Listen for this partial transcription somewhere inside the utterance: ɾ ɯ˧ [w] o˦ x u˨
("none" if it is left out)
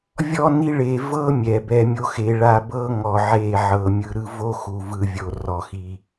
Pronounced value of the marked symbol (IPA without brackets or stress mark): v